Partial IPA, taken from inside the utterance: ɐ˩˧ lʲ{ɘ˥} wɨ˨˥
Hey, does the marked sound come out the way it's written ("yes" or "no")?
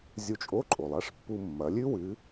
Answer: no